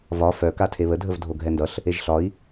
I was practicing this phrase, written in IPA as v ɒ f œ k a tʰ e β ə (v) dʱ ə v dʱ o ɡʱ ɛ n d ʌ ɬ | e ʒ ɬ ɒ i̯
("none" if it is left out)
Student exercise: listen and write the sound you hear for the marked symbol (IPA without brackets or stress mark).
none